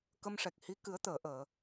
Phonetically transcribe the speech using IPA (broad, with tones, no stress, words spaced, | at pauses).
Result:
kə˧mʂɛ˨˩k̚hi˧˥ kɨ˨˩˦ə̯t̪əː˨˩˨ʔəː˨˩˨